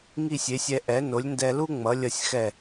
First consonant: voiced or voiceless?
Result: voiced